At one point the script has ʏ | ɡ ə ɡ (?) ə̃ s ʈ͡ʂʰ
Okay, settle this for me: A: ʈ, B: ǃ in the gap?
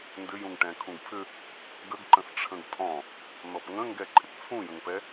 B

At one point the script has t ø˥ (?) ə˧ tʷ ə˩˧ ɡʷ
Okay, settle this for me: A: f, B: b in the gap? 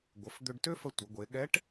A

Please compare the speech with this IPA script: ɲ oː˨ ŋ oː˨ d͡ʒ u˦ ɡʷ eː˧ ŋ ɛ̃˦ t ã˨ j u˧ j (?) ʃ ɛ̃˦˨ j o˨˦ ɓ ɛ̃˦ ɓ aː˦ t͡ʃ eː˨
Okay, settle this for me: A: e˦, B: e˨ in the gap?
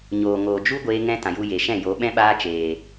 B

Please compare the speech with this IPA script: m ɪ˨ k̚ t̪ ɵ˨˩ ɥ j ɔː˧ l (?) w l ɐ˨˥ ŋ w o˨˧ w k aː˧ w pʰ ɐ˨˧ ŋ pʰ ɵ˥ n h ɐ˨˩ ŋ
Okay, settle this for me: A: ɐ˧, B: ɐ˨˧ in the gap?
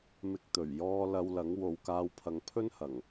A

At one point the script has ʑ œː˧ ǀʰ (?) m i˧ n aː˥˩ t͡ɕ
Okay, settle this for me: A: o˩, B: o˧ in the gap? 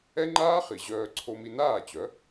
B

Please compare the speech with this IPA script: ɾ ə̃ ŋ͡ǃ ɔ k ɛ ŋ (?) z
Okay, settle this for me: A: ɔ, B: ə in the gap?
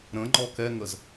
B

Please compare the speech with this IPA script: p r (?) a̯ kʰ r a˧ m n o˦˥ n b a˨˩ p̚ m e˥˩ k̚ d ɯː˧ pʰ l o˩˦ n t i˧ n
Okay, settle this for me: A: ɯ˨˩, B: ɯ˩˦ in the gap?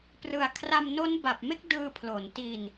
A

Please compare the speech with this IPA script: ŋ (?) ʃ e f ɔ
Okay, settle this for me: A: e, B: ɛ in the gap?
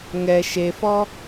B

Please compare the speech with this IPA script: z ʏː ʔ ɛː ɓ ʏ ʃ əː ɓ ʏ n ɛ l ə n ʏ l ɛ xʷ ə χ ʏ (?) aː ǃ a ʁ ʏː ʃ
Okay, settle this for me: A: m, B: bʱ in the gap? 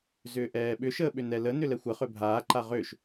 B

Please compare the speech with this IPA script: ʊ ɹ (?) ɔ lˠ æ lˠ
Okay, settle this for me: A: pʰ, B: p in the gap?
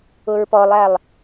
B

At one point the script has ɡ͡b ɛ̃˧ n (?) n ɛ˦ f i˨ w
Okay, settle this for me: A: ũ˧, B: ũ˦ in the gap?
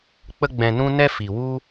B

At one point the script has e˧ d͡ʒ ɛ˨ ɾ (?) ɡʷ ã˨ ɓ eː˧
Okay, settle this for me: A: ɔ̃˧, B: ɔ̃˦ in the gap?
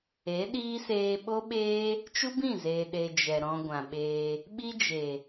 A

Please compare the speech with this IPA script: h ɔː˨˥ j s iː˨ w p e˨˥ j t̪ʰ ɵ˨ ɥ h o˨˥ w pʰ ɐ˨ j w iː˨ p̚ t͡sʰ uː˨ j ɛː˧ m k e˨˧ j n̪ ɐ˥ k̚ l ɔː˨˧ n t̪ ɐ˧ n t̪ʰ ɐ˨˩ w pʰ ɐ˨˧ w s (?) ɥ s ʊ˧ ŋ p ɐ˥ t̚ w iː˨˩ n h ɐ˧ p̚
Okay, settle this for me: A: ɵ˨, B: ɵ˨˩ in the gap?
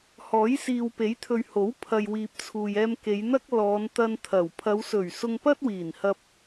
B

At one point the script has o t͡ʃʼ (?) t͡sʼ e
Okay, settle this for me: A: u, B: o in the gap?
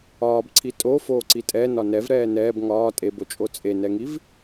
B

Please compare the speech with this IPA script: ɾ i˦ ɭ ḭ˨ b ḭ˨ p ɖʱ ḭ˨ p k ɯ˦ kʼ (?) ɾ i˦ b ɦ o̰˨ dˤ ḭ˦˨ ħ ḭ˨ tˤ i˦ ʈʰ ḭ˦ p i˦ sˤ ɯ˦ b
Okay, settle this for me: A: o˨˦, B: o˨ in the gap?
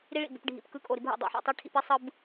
B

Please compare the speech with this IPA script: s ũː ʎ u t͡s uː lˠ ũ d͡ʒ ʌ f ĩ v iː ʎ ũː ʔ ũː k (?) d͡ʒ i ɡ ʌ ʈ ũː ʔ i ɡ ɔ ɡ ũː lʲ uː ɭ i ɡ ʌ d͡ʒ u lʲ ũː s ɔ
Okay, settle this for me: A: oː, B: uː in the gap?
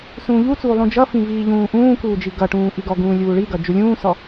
B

